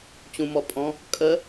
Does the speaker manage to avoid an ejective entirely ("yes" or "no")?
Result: no